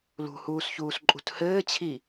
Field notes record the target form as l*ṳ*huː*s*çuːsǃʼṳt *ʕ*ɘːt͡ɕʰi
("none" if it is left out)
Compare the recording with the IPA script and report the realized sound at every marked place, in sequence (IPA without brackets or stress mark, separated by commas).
ṳ, s, h